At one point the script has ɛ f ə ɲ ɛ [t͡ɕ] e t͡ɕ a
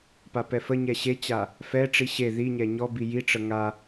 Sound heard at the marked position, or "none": ɕ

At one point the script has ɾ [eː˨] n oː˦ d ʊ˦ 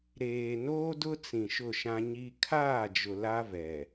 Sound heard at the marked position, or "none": eː˨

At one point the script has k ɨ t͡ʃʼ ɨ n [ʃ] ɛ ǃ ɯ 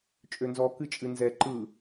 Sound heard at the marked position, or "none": z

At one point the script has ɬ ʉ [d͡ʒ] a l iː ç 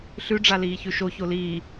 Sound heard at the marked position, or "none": ɖ͡ʐ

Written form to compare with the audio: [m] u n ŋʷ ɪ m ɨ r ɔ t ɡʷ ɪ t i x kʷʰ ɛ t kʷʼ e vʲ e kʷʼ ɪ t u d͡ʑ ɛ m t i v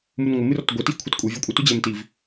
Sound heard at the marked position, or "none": m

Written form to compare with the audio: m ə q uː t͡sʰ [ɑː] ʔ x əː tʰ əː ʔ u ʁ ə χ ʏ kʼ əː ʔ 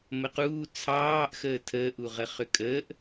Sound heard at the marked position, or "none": ɑː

